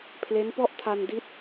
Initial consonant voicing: voiceless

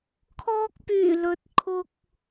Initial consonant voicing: voiceless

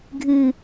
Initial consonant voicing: voiced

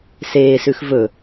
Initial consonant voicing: voiceless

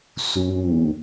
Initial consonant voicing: voiceless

